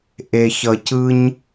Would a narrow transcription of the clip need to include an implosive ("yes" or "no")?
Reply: no